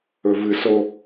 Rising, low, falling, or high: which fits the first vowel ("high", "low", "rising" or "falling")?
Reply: low